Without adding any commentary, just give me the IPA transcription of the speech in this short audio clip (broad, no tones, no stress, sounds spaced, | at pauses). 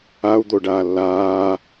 a u̯ d̪ o ɖ aː lː aː